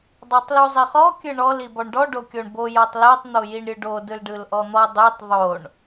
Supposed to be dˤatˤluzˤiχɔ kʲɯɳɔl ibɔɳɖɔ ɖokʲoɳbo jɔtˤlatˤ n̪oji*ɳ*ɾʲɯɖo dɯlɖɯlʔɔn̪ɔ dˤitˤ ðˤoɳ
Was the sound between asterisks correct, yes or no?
yes